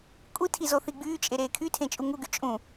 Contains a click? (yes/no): no